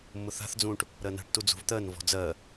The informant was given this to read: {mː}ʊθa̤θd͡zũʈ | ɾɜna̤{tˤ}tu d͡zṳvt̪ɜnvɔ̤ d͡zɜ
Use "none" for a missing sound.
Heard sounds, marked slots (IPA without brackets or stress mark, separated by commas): mː, ʈ